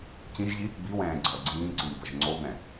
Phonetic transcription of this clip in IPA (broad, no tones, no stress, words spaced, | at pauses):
cĩʒʎi | biwɛ̃ː ɡ͡ǀɐːɡ͡ǀĩːǀiːbɐʒ ŋ͡ǀobɛ̃